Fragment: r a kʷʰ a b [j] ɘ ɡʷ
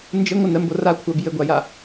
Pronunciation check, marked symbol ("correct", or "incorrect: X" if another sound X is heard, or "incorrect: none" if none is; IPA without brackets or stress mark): correct